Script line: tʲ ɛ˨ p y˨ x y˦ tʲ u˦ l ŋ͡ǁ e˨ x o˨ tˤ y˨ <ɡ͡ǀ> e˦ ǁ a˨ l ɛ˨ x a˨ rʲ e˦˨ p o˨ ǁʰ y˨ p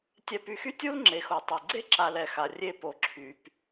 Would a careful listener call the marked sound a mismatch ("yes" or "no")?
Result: no